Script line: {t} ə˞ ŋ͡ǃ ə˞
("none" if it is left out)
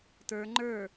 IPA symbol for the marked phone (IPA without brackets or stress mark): t